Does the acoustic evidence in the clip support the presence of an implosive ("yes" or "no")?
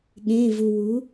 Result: yes